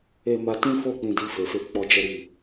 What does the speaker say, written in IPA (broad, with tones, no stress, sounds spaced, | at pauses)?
e˧ m a˧ t ĩ˦ f o˦˨ k͡p ĩ˧ d i˧ f e˨ f e˧ k͡p ɔ˦ d͡ʒ ɛ˦ ɾ i˦˨